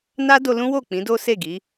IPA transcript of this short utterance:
na˦do˧lũ˦wo˦˨ k͡pĩ˨˦do˦se˦˨ɡi˨˦

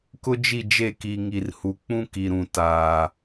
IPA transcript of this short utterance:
kʊ˦d͡ʒi˦˨d͡ʒe˦˨ki˨ ŋi˨rhu˨ k͡pũ˦ ki˨ɾũ˨ taː˨

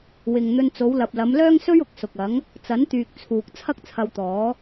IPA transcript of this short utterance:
wɪ˨ŋ n̪ɵ˧n t͡so˨˧wlɐ˨p̚lɐ˨˧m lœː˥ŋsɵ˥ɥʊ˨˥k̚ sʊ˨k̚ɐ˨˥ŋ | t͡sɐ˨˥nt̪yː˨k̚ t͡sʰuː˨k̚ t͡sʰɐ˥k̚t͡sʰɐ˧wt̪ɔː˨˥

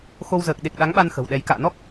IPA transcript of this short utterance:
xo˧wzəː˨˩k̚ ɗe˨˩k̚ɗa˨˦ŋɓa˧n xə̤˨˩wɗɛ˨˦j ka̰ː˧˨nɔ˦˥k̚

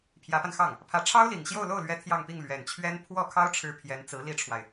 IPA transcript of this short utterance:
pʰjä˧˥pa˧nxɑ˥˩ŋ | pʰä˧˥ ʈ͡ʂʰɑ˥ʊ̯li˨˩ŋ ɕjo˥˧ʊ̯lo˥˩ʊ̯lɥɛ˧˥ t̪ʰjɑ˥˧ŋpi˥˩ŋ lɥɛ˨˩nt͡ɕʰɥɛ˥n pʰwɔ˥˩kʰɑ˥ʊ̯ʈ͡ʂʰɻ̩˧˥ pʰjɛ˧˥nt͡sɹ̩˧˥li˥ʈ͡ʂʰwa˨ɪ̯

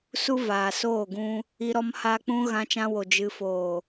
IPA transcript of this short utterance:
su˦vaː˨soː˦˨ɡũ˧ | i˧ɾɔ˧mhaː˧ k͡pũ˧ ɣã˧t͡ʃã˧wo˨ d͡ʒɨ˨foː˨

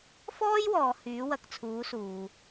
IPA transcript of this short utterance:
fɔː˥jwɔː˨ hyː˨˥wɐ˨˥k̚t͡sʰuː˨˥ suː˨

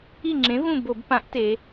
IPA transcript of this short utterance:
i˦˨ŋ͡ǁẽ˨˥ vũ˦˨ bo˧˩˧b pã˨˥ʔte˩˧

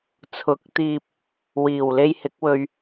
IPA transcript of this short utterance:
t͡sʰʊ˨˥k̚t̪iː˧p̚ | wiː˨˩wle˧jhɪ˨˥k̚wɵ˧ɥ

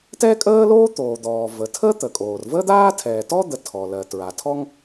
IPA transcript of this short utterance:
tɛ˥kʼəː˥loː˥ t̪oː˩d̪ɔː˩ və˩ tʰə˥ t̪ə˩kʼoː˩rvəː˥d̪aː˥ tʰɛː˩tɔ˥d̪ə˩ tʰɔ˩lɜ˩ tɹa˩tʰɔ˥ŋ

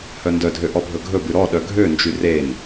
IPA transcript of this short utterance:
hœndœdʱø ʔɔbʱɵɡʱɵbʉ ɾɔ ɗœɡʱønd͡ʒy ren

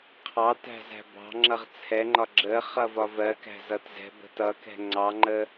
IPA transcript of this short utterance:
qʰɑtæ̤ zæ̤bɑ̤ŋ͡ǁʌʁ t͡sʰɛŋ͡ǃɒ ɡ͡ǁə χʌvɒvɜkæ̤ zʌtzɛ̤bə̤ tʌkɛ̤ ŋ͡ǀɑŋ͡ǃə

